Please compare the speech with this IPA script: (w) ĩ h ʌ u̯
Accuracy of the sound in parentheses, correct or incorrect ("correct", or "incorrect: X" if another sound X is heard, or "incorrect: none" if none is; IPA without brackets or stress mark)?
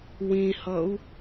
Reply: correct